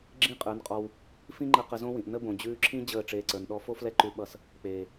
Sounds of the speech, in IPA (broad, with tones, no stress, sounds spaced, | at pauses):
ɡ͡ǁ ĩ˦ qʼ ə˞˨˦ n qʼ ɔ˧ w | f ĩ˦ ŋ͡ǃ ə˧ q ə˧ z õ˦ w ĩ˨ ʔ n ə˦ b õ˨ d͡ʑ ʉː˧ ǁʰ ĩ˦ d͡ʑ əː˦˨ ʈ͡ʂ eː˧ ǀ ə˞˨ n ɗ ɔ˦ f o˦ f l ɛ˦ ǃ ʉ˧ ɓ ʌ˧ s | k͡p eː˨